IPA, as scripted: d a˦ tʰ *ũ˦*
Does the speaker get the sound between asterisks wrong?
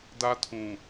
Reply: yes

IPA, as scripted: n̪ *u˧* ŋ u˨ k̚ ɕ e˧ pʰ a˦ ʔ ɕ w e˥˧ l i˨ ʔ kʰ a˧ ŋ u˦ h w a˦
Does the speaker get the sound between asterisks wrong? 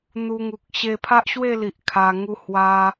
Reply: no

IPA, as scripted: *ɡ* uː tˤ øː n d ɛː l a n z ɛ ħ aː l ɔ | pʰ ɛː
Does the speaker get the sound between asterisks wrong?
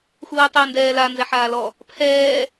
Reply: yes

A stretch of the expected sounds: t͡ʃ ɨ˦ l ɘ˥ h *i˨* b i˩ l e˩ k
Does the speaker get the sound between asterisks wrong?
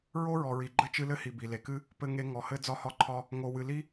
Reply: no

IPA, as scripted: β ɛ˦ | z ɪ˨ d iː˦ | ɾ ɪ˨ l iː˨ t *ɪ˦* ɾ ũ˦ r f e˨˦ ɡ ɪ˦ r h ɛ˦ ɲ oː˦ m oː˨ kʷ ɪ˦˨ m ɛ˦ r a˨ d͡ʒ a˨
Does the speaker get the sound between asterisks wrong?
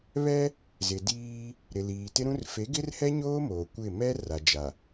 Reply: no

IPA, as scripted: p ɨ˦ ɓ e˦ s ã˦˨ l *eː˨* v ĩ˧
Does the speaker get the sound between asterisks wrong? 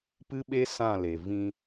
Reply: yes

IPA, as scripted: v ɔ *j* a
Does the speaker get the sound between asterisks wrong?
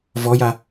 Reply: no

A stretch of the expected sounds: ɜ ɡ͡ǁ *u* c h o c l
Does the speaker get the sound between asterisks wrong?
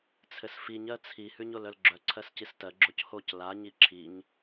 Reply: yes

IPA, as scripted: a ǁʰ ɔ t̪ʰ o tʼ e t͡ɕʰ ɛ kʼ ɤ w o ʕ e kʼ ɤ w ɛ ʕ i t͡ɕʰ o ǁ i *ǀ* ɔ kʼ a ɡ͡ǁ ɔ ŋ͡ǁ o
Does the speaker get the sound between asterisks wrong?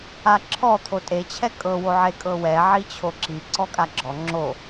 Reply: no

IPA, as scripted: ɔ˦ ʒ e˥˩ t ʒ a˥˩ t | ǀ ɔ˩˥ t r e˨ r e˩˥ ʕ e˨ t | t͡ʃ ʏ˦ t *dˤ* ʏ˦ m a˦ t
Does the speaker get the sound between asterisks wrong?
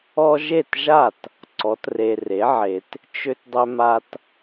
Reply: no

